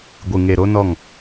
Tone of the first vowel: low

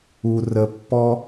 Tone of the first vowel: low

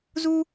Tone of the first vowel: high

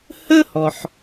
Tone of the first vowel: high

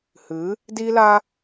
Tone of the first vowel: rising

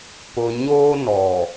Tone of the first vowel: low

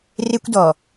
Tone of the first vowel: high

